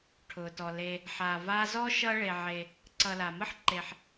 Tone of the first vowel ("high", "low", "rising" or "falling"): low